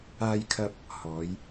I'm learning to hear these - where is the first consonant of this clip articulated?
palate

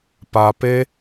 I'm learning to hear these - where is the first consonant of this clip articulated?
lips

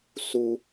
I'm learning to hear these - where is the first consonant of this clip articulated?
tongue tip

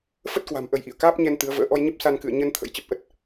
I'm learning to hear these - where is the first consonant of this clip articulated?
lips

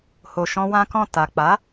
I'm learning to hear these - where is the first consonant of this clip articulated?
throat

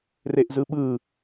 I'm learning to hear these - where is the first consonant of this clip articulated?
tongue tip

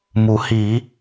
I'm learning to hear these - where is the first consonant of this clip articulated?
lips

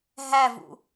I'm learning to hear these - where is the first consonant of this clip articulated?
throat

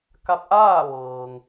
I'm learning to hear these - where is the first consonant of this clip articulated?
velum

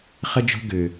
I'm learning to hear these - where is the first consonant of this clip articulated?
uvula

